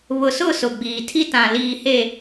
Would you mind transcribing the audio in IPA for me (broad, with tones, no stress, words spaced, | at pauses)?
βʊ˨sʊ˦˨ sʊ˨ɡ͡biː˨tʰi˦ tã˨ liː˨he˨